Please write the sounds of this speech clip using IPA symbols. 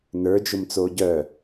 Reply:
n ə˞ d͡ʒ ʊ m t͡s oː ɟ œ

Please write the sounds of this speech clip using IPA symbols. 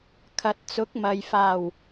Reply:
kʰ ɐ˨ t̚ t͡s ʊ˨˥ k̚ m ɐ˨ j f aː˨˩ w

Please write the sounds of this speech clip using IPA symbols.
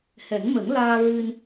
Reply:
h ɛ˨˩˦ ŋ m ə˨˩˦ ŋ l aː˧ ɹ ɨ˧ n

